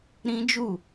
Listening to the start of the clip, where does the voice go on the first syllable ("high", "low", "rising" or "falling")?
high